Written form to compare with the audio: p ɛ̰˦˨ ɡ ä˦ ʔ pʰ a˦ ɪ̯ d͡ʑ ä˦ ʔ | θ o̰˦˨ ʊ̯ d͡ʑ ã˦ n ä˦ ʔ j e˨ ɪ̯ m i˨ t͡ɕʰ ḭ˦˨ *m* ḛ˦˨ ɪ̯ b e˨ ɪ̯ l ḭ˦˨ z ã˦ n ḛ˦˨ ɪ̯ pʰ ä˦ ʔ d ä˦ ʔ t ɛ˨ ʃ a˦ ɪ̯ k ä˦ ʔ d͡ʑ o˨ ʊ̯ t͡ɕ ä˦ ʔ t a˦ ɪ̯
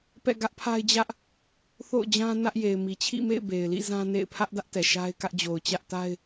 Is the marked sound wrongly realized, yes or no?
no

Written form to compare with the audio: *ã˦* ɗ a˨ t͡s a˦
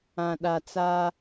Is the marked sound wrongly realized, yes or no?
yes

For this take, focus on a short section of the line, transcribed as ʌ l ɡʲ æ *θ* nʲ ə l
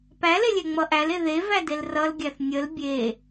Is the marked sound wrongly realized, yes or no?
no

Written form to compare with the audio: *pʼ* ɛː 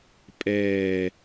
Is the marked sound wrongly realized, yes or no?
no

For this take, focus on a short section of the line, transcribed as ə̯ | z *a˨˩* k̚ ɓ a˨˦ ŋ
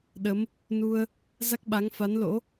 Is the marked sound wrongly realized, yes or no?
yes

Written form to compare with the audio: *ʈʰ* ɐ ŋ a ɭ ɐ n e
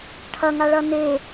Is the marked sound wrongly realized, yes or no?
no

